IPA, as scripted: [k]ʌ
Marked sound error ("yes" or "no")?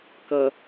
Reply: no